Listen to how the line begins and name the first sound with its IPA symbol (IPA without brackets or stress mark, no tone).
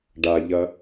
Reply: ɖ